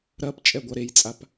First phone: ɾ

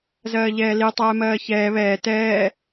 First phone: z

